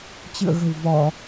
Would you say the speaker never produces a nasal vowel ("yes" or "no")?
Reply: yes